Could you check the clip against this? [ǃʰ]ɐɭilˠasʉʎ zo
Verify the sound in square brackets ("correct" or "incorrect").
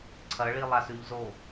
incorrect